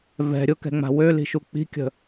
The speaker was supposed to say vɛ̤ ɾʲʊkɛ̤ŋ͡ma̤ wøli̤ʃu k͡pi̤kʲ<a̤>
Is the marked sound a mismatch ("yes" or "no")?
yes